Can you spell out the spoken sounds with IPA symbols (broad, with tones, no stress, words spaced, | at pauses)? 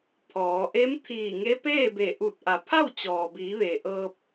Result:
pʰɔː˩˧ ʔe˧˥m t̪ʰiː˧˩ŋe˧˥peː˥˨be˧˩ ʔu˧˩t̚ ʔa˩˧pʰa˥˨wt͡ɕɔː˩biː˩˧ ʋe˩ʔɤː˧p̚